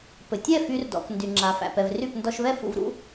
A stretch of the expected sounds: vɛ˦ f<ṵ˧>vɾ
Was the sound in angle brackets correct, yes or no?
yes